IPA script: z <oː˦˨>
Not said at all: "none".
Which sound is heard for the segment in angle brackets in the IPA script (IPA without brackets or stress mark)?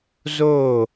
oː˦˨